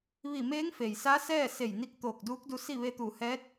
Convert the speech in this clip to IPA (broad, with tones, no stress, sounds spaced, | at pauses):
ʋ i˧˩ m eː˧˥ ŋ f e˩ j s aː˧˥ s ɛː˥˨ s e˧˩ j n i˧ k̚ t̪ oː˧˩ k̚ d uː˧˥ k̚ d u˧ s i˥˨ ʋ e˧ t̪ uː˧˩ h ɛː˧˥ t̚